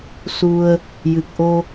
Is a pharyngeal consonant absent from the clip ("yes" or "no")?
yes